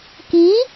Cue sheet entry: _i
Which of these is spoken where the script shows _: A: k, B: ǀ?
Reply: A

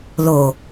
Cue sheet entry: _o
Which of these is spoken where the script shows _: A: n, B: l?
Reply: B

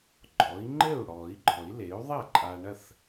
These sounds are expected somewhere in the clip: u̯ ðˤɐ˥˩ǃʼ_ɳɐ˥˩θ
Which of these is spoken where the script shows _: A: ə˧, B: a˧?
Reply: B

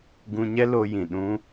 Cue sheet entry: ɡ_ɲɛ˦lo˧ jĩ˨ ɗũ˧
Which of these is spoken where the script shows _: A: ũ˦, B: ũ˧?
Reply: B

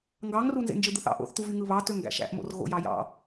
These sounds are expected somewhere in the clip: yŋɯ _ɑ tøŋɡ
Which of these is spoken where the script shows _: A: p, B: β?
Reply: B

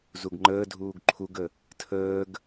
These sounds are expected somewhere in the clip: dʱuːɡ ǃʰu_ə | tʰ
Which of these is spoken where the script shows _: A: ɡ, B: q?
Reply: A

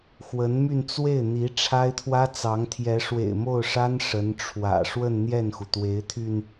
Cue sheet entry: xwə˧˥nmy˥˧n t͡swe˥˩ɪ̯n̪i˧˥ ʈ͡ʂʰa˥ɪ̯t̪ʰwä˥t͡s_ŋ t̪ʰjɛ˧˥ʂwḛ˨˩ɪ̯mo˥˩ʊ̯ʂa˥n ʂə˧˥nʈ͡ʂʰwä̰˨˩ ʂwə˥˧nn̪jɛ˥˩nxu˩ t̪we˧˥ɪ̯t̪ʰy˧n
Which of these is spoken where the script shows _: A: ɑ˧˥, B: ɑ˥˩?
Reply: A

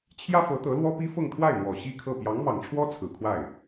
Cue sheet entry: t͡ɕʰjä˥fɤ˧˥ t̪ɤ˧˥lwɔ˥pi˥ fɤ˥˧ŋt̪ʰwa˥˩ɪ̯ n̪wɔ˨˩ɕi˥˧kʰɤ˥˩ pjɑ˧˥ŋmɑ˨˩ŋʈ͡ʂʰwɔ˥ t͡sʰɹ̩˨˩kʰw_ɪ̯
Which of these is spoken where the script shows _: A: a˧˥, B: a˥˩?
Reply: B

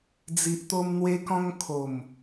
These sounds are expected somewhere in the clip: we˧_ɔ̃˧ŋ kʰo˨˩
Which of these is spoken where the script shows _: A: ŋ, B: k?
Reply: B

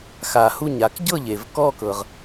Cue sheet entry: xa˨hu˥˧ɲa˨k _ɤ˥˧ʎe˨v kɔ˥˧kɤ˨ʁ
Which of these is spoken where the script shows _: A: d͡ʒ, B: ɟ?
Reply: B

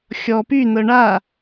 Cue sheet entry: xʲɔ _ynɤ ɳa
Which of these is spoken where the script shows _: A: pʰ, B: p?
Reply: B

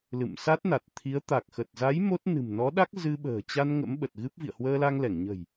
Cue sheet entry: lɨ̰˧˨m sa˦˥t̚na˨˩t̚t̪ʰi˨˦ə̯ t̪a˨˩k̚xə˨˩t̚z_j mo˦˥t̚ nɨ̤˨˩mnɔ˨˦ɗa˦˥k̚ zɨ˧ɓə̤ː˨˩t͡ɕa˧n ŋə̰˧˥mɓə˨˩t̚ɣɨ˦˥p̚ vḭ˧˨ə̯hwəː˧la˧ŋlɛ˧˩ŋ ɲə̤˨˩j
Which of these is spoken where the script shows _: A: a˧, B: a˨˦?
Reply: B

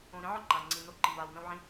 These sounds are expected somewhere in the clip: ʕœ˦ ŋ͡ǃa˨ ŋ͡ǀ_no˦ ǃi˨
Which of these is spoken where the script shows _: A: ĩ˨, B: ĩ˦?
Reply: A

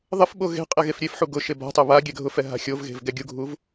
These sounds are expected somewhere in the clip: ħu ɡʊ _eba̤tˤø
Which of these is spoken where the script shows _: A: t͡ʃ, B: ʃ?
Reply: B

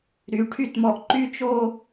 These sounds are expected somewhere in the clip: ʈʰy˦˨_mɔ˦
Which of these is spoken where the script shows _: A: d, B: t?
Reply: B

